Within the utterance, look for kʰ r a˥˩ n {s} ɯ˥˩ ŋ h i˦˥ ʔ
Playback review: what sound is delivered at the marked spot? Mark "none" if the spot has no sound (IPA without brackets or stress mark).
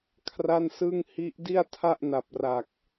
s